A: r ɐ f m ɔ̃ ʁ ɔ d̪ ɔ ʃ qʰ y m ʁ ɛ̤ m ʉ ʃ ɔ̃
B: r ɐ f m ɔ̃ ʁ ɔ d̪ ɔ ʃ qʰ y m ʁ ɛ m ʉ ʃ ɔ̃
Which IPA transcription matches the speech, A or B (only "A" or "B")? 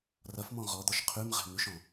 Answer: A